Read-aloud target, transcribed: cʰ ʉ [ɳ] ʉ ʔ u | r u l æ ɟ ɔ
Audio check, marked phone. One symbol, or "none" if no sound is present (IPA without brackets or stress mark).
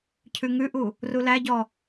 ŋ